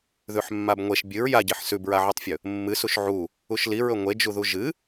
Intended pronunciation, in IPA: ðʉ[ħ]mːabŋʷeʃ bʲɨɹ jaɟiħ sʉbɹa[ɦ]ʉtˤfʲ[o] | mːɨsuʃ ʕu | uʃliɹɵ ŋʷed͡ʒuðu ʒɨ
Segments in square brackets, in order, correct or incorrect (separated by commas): correct, incorrect, incorrect